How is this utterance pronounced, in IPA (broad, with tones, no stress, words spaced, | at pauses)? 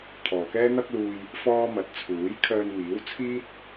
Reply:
t̪ʰɔː˨kɛː˥n̪ɐ˥k̚luː˧j | fɔː˥mɐ˨˥t̚ t͡sʰuː˨˥j kʰœː˧nmiː˨˥w t͡sʰiː˥t̚